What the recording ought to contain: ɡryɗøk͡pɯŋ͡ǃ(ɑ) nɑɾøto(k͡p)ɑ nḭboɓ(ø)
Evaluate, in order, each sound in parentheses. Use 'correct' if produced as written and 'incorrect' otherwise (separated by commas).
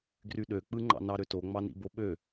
incorrect, incorrect, correct